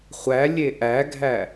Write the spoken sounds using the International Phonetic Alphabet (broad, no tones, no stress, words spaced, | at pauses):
χʷælʲe ʔæɡʱæ